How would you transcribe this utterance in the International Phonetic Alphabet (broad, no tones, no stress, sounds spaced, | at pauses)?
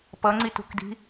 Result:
p ʌ ŋ͡ǀ i t ṳ k d i̤